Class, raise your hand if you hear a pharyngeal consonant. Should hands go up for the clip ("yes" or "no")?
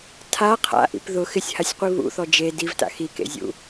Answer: no